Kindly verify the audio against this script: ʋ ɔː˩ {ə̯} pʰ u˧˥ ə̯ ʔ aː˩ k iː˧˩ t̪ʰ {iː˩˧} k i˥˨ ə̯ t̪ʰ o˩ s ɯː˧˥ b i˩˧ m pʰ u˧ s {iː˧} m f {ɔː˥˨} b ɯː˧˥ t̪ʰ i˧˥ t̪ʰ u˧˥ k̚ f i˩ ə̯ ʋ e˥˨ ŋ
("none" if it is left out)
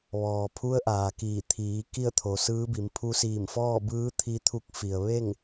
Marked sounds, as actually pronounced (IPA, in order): none, iː˩˧, iː˧˩, ɔː˥˨

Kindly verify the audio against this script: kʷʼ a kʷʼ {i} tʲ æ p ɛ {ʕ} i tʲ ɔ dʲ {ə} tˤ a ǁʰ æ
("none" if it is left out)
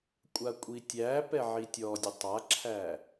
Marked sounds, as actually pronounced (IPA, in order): i, ʕ, ə

